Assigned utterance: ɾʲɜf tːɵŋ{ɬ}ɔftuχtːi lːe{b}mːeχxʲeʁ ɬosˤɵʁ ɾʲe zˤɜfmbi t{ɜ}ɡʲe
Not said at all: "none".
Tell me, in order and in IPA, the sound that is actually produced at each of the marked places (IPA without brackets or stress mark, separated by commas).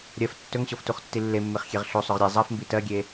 ɕ, none, ɜ